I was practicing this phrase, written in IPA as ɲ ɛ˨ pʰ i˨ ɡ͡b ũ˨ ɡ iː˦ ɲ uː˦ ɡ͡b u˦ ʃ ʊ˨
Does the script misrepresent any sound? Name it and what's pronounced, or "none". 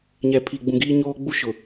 uː˦ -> oː˦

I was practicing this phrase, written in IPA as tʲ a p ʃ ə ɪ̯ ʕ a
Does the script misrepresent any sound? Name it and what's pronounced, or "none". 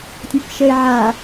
none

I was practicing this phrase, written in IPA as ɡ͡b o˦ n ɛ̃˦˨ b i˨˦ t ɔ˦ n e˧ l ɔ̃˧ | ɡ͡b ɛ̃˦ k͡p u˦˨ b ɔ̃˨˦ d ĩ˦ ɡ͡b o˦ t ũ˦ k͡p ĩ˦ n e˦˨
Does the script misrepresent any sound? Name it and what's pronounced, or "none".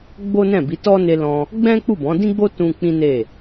none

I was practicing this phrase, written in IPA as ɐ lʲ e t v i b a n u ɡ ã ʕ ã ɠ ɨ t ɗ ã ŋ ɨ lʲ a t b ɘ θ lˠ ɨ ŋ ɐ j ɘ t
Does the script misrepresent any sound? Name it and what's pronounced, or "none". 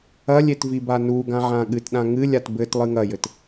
θ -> t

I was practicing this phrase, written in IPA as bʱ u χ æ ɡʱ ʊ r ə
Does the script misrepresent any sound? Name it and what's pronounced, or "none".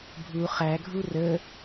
ʊ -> u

